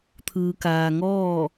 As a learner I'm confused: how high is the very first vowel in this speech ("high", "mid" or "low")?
high